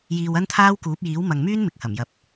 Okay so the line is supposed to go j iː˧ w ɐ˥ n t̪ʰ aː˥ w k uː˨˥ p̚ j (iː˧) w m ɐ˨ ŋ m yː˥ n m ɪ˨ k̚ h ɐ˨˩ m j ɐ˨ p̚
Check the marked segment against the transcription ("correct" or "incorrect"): incorrect